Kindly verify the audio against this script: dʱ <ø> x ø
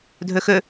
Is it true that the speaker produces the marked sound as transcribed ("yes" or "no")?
yes